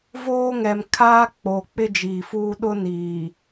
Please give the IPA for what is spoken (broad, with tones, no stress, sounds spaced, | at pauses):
v oː˦ ŋ ɛ˨ m kʰ a˦ k͡p o˨ k͡p ɪ˦ d͡ʒ iː˨ f uː˦ ɗ ʊ˦ n iː˨